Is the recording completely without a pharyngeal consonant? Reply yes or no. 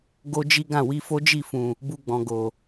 yes